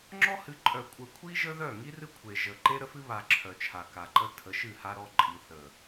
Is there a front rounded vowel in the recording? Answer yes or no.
yes